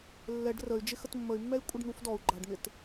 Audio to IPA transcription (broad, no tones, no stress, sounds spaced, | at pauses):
lː ɛ ɖ r ə y̯ d͡ʒ ɪ x ə t mː ə y̯ mː ɛ i̯ kʷʼ ɪ ɖ n̪ u f d ɔ u̯ ɡ͡ǃ a ɖ n̪ ɪ t